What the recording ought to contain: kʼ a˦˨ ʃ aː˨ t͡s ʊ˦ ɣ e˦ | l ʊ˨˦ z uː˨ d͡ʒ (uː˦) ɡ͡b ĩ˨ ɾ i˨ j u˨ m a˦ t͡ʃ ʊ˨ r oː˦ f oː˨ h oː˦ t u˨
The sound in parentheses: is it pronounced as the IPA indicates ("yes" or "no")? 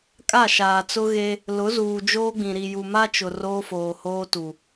no